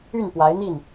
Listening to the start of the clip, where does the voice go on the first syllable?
falling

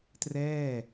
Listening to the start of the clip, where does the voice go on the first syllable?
falling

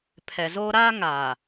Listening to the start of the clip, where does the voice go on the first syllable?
low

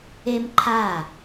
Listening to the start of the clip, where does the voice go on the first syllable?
high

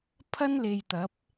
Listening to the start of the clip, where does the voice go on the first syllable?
high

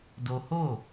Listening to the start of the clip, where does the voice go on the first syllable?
high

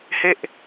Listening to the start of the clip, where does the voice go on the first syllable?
falling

